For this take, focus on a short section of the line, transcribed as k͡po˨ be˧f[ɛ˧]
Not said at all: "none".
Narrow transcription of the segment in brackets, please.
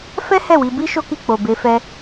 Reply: ɛ˧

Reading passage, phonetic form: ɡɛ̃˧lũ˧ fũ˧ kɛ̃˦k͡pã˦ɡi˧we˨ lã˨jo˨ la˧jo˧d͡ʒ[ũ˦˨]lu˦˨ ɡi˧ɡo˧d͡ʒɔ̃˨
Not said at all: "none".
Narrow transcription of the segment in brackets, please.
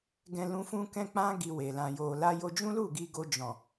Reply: ũ˦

